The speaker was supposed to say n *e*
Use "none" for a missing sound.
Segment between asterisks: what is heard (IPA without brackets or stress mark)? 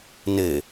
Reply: e